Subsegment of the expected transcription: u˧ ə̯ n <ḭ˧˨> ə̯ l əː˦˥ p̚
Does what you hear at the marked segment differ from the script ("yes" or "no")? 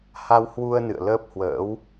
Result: yes